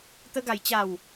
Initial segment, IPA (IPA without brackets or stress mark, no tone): t̪